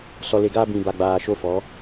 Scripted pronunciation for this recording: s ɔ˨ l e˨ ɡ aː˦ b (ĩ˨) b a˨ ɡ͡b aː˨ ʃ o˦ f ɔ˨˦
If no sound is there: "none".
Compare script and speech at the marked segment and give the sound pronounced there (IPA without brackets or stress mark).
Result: ĩ˨